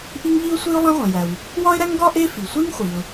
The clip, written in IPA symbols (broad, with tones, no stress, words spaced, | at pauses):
ʔi˥ŋʎi˥ʊ̯sʷi˥ʊ̯ lˠẽ˥ʁʷẽ˩jæ˩w | wɒ˥ɪ̯ɾæ˥ŋɡɒ˥ ʔe˥fi˩ sʷi˥ŋχʷi˩ʊ̯